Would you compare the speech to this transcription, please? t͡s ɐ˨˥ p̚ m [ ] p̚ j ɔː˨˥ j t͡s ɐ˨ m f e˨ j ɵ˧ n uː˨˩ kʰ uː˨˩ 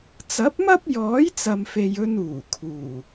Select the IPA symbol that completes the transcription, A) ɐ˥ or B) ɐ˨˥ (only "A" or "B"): A